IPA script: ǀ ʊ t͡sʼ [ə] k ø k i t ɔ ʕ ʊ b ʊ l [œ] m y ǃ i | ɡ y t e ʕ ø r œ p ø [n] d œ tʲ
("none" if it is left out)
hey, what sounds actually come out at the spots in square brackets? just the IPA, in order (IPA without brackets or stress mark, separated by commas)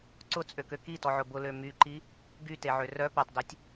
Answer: ø, ø, tˤ